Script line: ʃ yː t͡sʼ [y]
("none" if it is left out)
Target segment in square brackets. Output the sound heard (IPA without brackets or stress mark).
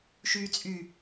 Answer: y